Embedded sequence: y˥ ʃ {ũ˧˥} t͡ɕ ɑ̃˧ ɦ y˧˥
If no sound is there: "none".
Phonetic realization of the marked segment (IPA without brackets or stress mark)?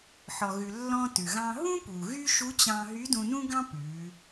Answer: u˧˥